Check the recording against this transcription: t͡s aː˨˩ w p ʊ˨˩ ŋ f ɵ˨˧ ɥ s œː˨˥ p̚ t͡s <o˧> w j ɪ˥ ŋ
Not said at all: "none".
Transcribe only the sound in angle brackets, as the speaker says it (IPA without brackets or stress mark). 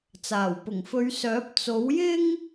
o˨˥